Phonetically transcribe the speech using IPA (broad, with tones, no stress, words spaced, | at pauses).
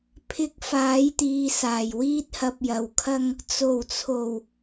pʰɪ˧k̚faː˨˥jt̪iː˨ saː˨˩jwiː˥t̚hɐ˧p̚jɐ˨w kʰɐ˥ŋ | t͡so˨˩wt͡sʰo˨˩w